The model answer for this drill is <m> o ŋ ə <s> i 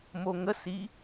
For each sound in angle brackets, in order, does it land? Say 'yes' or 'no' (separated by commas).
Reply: yes, yes